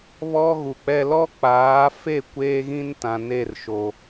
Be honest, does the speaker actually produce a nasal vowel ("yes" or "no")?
yes